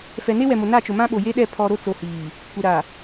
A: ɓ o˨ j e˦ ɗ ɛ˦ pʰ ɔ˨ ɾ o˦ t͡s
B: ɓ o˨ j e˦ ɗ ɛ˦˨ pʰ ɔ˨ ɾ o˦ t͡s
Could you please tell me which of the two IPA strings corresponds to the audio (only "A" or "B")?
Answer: B